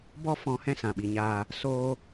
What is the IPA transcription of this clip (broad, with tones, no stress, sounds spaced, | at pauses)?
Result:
b ɔ˦ f ɔ̃˧ h ɛ̃˦ s ã˨ ɓ i˨ ɲ aː˧ | s oː˧